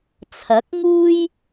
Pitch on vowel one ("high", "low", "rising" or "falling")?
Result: rising